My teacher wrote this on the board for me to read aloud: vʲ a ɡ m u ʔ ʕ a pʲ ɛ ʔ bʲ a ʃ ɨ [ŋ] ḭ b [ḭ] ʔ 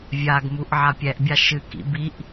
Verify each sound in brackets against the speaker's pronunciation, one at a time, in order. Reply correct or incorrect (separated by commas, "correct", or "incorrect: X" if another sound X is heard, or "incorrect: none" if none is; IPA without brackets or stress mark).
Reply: incorrect: k, incorrect: i